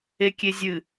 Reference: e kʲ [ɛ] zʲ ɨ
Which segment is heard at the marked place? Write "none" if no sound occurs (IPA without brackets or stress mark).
e